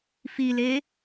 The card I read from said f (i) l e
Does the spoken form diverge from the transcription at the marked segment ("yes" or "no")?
no